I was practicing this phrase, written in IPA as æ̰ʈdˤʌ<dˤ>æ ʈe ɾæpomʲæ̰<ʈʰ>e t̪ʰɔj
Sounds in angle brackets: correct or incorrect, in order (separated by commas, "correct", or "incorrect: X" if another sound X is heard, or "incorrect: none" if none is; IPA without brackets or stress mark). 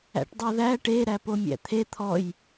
incorrect: ð, incorrect: t̪ʰ